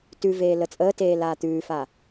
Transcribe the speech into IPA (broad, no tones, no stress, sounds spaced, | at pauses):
t ʉ v eː l ə t͡sʼ əː t eː l aː t̪ ʉː f a